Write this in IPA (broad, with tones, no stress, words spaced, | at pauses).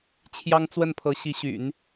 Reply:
t͡ɕʰjɑ˥ŋt͡swə˥˩npʰɤ˧˥ ɕi˧˥ɕy̰˨˩˦n